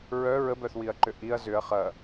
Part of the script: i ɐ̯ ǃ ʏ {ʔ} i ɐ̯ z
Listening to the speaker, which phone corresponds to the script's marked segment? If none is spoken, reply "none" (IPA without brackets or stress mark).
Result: ʔ